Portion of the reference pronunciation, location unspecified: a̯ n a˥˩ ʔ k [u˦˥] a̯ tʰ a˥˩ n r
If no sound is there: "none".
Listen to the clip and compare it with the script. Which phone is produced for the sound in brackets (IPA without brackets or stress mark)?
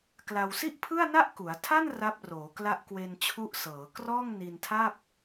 u˩˦